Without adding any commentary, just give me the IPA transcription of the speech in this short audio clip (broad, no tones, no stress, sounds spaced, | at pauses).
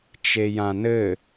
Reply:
t͡ʃ e j ã n ɘ